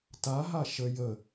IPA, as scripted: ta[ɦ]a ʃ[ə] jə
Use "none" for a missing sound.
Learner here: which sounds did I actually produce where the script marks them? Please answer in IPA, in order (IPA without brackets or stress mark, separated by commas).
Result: ɦ, ə